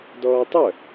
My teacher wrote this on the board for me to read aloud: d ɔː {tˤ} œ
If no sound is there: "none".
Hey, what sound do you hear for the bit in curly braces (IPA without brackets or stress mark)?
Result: tˤ